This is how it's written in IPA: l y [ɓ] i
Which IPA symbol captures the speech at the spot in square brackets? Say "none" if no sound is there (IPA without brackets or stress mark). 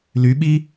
ɓ